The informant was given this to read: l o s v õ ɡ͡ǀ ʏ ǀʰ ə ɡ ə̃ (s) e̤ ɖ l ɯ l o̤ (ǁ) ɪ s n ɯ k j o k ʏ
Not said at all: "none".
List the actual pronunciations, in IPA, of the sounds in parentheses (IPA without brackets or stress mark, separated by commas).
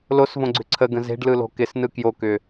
z, k